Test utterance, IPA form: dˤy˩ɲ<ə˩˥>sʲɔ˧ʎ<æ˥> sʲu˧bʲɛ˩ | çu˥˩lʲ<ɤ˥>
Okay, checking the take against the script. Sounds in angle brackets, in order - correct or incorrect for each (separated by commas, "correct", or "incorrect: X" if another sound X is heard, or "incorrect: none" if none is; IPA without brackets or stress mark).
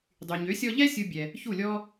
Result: incorrect: ø˩˥, incorrect: ɛ˥, incorrect: ɔ˥